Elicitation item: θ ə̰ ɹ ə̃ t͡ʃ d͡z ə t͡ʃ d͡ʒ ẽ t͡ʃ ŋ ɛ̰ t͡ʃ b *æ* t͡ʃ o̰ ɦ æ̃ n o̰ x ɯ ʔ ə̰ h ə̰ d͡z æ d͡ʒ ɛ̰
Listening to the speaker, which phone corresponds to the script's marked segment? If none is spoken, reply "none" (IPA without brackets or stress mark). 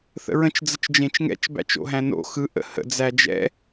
æ̰